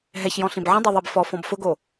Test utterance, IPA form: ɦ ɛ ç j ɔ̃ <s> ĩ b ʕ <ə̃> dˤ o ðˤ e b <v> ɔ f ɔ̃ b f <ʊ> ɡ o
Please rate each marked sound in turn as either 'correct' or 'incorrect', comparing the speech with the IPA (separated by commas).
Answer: incorrect, correct, incorrect, correct